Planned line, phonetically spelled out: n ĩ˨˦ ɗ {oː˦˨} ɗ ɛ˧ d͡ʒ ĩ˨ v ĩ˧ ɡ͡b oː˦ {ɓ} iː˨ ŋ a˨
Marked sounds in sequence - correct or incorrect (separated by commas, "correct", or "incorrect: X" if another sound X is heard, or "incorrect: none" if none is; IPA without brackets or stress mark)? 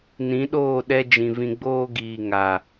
correct, incorrect: ɡ